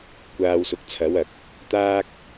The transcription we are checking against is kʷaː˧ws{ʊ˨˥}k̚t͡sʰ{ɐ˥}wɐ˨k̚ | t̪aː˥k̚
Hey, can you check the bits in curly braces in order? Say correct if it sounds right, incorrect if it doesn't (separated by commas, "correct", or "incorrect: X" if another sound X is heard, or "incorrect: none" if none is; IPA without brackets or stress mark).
correct, incorrect: ɐ˨˥